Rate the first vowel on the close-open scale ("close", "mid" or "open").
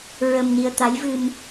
mid